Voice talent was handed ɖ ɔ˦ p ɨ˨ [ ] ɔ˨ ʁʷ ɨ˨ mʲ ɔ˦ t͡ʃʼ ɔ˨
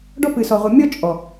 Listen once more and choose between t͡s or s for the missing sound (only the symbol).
s